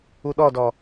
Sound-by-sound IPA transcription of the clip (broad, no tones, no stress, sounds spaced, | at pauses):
u ɗ ɔ d ɔ